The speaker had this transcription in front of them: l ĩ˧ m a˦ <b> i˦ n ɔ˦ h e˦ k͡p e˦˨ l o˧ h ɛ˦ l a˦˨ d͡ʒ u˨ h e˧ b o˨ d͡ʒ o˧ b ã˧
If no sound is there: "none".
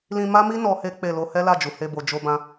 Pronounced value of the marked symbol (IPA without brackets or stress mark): m